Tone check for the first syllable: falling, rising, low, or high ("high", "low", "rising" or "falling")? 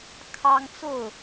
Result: high